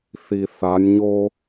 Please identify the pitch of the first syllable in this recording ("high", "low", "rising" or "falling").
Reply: low